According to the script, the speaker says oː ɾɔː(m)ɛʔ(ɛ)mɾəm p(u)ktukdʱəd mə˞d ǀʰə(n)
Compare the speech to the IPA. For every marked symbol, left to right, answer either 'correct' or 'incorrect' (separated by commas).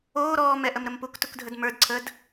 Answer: correct, incorrect, correct, incorrect